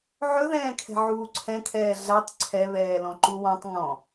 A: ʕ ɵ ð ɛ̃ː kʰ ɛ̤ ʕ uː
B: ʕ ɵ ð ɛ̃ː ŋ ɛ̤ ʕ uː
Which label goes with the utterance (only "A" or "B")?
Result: A